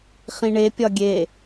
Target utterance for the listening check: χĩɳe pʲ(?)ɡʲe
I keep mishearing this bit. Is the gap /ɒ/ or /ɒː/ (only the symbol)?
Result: ɒ